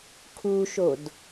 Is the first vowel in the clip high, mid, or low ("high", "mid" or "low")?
high